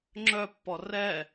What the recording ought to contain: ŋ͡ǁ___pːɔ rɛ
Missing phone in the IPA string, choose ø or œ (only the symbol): œ